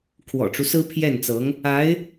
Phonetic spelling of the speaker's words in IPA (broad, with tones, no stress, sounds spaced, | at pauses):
kʰ w ɔ̰˨˩ ʈ͡ʂ u˦ s ɹ̩˥ pʰ j ɛ˥˩ n t͡s ɤ˧˥ ŋ | a˧˥ ɪ̯